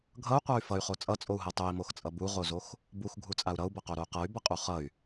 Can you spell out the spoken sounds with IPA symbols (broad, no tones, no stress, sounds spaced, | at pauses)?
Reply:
ɡʱ ʌ u̯ qʷ a y̯ f ʌ y̯ χ o t͡sʼ ʌ t͡sʼ o u̯ ɦ ɤ tˤ o i̯ m o x t͡sʼ ʌ b u ʁ o z o x | b u x ɡʱ u t͡sʼ a u̯ ɾ ʌ u̯ b ʌ q o ɾ o u̯ q ɤ y̯ b ʌ qʼ u χ ʌ y̯